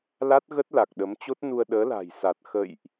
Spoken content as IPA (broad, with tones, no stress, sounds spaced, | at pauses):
l a˦˥ t̚ ɣ ə˦˥ t̚ l a˨˩ k̚ ɗ ə˨˦ m t͡ɕ o˦˥ t̚ n u˧ ə̯ ɗ əː˨˦ l a̤˨˩ j s a˨˩ t̚ x ə̰˧˨ j ʔ